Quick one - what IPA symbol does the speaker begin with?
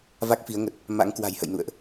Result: v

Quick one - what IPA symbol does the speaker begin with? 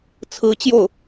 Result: t͡sʰ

